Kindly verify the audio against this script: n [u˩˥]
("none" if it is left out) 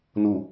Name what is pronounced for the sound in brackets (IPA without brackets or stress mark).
u˧˩˧